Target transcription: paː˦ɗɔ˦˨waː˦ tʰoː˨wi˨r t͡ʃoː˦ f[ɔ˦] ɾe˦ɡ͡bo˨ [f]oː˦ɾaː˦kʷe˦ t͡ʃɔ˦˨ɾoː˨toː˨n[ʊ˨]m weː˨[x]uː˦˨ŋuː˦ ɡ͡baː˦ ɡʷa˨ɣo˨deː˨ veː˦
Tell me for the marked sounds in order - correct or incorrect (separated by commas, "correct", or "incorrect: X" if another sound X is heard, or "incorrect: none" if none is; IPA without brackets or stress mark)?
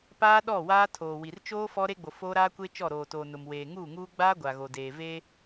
correct, correct, correct, incorrect: ŋ